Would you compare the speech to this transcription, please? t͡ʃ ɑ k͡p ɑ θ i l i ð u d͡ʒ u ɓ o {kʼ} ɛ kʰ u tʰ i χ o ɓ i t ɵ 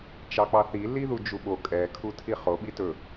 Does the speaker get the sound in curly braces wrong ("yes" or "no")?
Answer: no